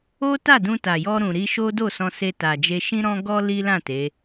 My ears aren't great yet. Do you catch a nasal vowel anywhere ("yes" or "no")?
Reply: yes